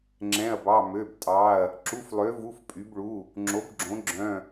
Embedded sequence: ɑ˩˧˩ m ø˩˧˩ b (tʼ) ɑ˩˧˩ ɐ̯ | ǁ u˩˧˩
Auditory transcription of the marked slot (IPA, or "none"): tʼ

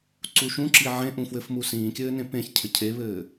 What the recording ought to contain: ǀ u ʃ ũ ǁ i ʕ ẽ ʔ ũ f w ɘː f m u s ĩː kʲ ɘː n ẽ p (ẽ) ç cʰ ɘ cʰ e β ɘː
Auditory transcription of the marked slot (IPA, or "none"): ẽ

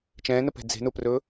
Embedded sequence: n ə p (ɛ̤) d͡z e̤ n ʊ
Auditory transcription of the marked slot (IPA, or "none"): ɛ̤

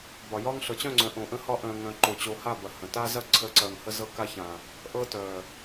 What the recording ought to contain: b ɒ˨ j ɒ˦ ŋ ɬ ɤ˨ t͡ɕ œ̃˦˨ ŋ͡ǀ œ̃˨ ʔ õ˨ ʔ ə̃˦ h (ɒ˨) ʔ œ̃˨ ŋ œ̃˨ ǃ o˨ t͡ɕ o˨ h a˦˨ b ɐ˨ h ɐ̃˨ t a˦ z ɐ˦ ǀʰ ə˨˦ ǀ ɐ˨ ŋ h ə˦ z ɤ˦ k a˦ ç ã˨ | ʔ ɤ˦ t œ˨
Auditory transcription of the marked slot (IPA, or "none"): ɒ˦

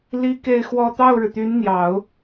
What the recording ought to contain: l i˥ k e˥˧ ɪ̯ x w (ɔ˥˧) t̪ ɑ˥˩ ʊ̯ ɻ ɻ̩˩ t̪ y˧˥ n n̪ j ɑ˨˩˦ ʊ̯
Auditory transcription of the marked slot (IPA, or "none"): ɔ˥˧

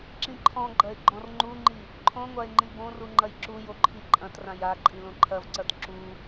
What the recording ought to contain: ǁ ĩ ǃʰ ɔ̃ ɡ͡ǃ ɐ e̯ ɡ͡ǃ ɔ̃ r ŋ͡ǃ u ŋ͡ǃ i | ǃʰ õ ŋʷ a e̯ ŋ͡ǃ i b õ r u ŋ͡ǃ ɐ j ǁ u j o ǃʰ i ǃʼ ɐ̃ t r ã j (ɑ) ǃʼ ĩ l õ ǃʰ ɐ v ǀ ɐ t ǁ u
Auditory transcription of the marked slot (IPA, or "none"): a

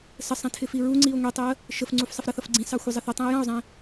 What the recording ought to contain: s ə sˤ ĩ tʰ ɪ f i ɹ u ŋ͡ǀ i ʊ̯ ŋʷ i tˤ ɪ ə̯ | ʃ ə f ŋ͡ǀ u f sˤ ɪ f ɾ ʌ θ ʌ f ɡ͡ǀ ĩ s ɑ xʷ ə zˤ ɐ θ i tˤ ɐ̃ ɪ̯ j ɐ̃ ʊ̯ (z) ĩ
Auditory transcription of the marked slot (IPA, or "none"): zˤ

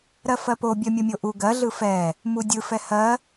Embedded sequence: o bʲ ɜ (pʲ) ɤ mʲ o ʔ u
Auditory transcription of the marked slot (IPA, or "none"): mʲ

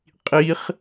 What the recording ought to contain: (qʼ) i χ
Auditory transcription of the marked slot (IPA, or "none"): qʼ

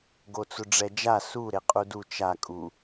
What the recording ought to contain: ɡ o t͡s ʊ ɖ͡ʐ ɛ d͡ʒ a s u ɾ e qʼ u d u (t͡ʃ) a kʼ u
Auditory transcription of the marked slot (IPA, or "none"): t͡ʃ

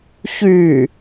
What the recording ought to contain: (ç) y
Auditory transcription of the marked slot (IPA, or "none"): ç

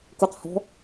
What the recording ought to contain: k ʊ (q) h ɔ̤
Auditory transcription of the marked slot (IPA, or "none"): q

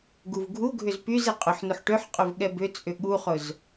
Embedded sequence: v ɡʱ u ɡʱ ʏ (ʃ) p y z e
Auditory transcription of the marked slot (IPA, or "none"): z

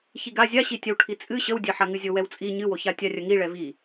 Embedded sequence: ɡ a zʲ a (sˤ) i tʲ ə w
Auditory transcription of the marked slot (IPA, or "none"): ɕ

